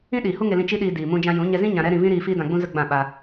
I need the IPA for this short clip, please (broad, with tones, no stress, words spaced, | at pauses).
ĩ˦ ɗiː˨hu˦ŋe˧lĩ˧ t͡ʃi˦ɗiː˧ diː˨ mũ˧d͡ʒã˧jũ˨˦ ɲɛ˧zĩ˦ ɲã˧ɾɛ˦ ɾĩ˧vĩ˦ɾiː˧ fiː˦dã˧ɡ͡bũ˦ zə˦ɡ͡bã˦˨ ɓa˧